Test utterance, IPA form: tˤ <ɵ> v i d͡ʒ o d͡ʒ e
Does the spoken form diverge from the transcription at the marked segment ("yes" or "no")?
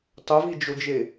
no